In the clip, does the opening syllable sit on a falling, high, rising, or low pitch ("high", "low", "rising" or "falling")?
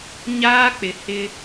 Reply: high